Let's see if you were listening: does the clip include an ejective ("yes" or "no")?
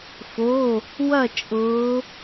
yes